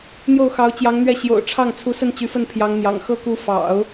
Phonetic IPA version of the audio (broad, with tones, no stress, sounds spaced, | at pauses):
n̪ j o˥˩ ʊ̯ x ɑ˧˥ ʊ̯ t͡ɕ j ɑ˧˥ ŋ n̪ ɥ ɛ˥˩ ɕ j o̰˨˩ ʊ̯ ʈ͡ʂʰ ɑ˥˩ ŋ t͡sʰ u˧˥ s ə˥˩ n t͡ɕ y˧˥ f ə˥˩ n pʰ j ɑ˧˥ ŋ n̪ j ɑ̰˨˩ ŋ x ɤ˥ k u˧˥ f ɑ̰˨˩˦ ʊ̯